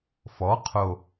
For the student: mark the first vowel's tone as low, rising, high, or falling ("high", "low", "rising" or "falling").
rising